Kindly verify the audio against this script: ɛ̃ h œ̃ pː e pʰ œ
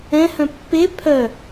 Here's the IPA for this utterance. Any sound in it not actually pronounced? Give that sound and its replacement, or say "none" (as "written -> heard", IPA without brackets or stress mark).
none